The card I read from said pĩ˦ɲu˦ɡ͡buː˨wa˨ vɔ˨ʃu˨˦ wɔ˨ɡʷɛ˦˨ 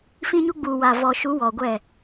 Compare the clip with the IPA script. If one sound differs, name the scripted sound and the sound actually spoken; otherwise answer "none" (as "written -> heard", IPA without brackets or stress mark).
p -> f